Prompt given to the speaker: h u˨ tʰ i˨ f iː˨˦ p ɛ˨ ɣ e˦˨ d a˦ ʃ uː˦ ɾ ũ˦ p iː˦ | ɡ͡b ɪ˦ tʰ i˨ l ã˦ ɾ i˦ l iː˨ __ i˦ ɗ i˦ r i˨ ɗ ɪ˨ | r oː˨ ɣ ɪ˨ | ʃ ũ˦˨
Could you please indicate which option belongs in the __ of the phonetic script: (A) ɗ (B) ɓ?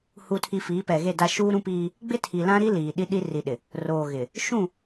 A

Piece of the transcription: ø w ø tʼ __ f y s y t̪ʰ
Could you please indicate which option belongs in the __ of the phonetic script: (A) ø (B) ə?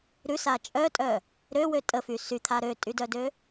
B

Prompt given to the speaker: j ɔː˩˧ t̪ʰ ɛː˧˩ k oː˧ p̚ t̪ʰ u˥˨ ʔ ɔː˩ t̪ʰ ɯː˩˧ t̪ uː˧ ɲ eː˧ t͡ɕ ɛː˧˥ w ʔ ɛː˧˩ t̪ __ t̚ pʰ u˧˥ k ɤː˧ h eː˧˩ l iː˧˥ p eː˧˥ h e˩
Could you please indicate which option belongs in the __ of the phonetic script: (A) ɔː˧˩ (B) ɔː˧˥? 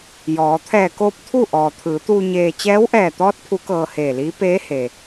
B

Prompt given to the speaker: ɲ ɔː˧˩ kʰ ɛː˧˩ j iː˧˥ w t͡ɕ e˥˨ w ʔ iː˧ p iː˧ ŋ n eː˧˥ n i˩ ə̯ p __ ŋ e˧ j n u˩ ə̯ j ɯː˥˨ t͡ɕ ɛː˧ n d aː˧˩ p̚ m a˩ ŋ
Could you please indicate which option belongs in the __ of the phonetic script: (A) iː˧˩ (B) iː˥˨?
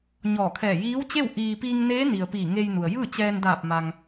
A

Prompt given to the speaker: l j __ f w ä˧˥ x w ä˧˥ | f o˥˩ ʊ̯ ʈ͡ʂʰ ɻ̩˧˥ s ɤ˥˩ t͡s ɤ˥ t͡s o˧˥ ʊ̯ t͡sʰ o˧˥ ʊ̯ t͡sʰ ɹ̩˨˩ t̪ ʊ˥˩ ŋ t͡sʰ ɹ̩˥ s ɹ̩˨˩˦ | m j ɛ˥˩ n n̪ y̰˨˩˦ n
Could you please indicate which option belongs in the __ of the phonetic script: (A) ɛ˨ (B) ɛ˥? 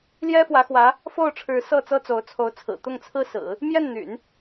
B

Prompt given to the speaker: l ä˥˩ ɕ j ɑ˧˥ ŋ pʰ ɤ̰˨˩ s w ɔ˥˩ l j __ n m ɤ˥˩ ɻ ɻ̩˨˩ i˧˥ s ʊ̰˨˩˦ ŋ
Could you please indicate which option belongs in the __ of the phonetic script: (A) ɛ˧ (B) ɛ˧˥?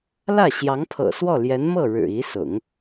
B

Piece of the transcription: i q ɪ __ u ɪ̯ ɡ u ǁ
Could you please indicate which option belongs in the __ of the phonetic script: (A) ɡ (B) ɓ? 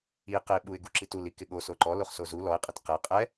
B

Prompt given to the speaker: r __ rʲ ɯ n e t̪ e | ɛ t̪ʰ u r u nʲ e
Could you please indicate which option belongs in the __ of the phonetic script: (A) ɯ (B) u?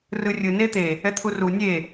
A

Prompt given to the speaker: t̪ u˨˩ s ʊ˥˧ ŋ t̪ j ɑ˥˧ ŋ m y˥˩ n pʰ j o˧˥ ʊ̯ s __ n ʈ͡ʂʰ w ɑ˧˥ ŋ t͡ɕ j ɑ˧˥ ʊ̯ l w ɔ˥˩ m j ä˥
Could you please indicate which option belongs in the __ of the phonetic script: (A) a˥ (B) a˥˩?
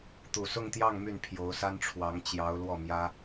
A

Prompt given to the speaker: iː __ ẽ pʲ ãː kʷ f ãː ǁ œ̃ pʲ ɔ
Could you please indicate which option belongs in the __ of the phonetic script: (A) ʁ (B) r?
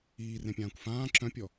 B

